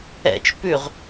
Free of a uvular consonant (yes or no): no